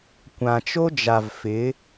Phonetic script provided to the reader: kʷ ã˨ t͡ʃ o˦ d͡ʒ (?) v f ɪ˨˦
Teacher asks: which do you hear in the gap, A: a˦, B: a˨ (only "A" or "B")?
B